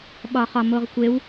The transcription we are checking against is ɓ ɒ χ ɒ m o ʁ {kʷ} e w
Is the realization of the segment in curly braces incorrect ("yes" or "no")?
no